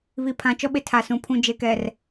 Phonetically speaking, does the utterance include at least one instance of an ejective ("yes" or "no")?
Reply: no